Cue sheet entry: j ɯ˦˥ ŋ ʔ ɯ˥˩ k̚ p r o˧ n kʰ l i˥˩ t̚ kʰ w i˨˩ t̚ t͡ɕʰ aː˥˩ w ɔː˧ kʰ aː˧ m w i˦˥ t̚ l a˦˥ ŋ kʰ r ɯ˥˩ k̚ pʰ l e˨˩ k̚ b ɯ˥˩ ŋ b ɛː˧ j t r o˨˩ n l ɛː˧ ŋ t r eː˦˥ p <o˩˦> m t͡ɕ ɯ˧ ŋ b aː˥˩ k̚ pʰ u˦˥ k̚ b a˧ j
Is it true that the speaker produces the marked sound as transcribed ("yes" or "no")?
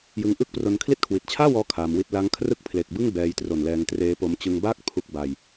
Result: no